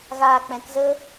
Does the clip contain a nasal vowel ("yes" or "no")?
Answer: yes